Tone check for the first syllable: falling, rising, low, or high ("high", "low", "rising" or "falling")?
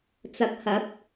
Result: rising